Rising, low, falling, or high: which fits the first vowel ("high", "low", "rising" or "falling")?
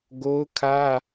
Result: high